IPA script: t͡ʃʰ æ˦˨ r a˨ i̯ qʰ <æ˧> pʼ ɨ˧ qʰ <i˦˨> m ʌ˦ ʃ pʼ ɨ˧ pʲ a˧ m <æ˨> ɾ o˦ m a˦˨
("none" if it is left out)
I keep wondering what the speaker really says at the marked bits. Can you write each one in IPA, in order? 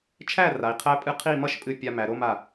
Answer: æ˧, i˦˨, æ˨

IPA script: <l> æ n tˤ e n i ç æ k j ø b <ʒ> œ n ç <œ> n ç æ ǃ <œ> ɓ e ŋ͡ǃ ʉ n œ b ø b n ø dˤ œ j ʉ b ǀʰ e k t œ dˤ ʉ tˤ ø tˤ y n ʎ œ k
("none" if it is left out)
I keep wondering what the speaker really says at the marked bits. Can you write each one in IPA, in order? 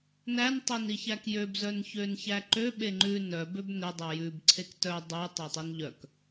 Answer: n, z, ø, ø

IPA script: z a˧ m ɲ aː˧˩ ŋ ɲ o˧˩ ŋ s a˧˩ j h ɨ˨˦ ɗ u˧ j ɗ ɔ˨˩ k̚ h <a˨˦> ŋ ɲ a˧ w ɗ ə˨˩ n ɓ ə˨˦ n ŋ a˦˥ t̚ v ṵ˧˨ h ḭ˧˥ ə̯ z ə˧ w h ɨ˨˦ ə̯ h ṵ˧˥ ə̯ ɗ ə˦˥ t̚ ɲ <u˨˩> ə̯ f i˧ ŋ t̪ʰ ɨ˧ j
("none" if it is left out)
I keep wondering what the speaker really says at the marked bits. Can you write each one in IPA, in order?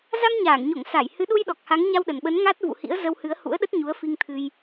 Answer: a˨˦, u˨˦

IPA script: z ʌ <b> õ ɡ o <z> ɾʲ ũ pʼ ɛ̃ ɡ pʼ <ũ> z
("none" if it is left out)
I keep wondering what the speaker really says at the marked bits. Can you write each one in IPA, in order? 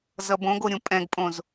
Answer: b, none, õ

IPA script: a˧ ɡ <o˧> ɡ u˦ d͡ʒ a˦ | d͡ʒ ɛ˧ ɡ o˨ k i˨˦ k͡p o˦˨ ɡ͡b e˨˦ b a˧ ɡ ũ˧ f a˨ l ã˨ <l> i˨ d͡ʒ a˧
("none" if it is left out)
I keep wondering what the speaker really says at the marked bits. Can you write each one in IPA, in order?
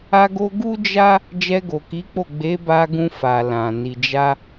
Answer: o˧, n

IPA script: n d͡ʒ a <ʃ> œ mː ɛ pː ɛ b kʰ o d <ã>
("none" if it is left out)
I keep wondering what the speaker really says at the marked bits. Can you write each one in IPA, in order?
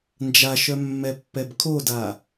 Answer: ʃ, a

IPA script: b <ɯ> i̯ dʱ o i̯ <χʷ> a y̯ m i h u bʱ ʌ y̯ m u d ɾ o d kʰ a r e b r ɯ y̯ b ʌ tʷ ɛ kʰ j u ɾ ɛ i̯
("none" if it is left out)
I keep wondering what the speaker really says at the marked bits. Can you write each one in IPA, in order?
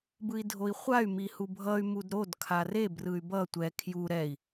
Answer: ɯ, χʷ

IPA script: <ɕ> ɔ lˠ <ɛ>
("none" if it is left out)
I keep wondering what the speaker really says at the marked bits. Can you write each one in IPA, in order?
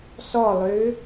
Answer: s, ø

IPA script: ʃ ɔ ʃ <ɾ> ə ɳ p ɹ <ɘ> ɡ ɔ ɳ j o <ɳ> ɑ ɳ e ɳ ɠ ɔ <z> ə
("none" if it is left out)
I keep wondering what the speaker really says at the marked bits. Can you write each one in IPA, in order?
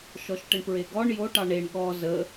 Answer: ʈ, e, ʈ, z

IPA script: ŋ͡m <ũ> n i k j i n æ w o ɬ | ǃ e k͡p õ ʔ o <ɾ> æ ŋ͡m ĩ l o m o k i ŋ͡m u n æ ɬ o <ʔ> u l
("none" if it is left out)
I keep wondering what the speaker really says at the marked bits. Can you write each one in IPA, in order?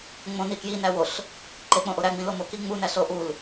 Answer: õ, ɾ, ʔ

